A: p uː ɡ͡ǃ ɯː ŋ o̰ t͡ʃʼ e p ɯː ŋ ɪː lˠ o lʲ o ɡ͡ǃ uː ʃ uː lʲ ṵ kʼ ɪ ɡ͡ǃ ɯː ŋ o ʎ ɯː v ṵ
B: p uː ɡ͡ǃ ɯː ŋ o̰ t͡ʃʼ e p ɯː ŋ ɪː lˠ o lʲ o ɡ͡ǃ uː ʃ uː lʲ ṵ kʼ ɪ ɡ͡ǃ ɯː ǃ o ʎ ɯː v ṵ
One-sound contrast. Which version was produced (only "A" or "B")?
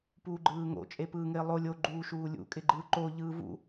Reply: B